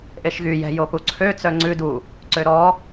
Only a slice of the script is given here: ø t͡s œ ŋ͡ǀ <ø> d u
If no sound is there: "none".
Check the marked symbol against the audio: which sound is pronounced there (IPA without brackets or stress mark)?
ʉ